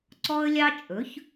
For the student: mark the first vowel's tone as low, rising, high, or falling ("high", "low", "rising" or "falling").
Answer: high